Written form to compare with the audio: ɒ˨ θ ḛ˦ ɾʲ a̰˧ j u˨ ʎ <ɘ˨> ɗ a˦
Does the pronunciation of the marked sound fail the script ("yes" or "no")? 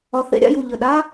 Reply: no